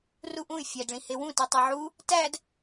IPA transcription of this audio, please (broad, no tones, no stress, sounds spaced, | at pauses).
r u ʔ ũ y̯ fʲ æ d ɭ ĩ h e w ũ t i tˤ e ʕ u | t æ d